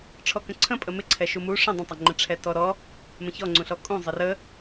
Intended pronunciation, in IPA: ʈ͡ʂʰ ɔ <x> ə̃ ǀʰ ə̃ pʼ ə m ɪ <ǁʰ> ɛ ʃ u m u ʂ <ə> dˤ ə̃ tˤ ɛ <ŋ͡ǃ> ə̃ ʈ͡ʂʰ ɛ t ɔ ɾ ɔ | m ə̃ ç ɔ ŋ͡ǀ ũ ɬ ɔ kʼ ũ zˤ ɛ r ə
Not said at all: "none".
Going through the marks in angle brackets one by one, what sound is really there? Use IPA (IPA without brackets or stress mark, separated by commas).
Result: k, ǀʰ, ə̃, ŋ͡ǃ